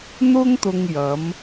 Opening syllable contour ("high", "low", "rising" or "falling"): high